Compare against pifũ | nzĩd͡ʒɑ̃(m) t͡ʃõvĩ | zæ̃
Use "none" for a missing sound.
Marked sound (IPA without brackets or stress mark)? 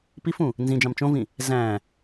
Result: m